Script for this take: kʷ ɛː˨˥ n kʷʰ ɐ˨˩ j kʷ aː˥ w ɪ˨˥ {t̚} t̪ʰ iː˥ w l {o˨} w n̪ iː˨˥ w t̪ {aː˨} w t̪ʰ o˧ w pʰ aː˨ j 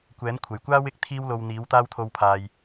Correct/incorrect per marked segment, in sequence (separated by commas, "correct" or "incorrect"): incorrect, incorrect, incorrect